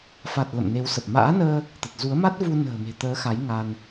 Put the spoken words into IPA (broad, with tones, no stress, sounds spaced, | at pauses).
f a˨˩ t̚ l ə̰˧˨ m n e˨˦ w s ə˨˩ p̚ m a̰ː˧˥ n əː˧ | t̪ ə˨˩ t̚ z u˨˦ ə̯ m a˦˥ t̚ v u˧ n ə̤ː˨˩ m e̤˨˩ t̪ əː˨˦ x a˨˦ j ŋ a˧ n